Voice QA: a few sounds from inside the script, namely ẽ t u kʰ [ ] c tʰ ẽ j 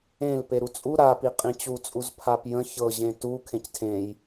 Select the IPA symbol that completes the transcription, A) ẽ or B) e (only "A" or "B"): A